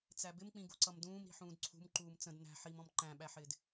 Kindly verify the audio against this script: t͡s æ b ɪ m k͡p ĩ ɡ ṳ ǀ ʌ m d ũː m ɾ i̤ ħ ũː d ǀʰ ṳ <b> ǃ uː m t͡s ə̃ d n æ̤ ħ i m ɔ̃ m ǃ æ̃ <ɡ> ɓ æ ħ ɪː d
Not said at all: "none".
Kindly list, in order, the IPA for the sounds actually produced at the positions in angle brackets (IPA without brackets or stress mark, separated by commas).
m, none